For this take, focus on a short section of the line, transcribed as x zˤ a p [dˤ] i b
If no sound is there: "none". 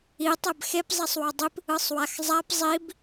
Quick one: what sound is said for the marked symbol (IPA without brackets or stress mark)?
zˤ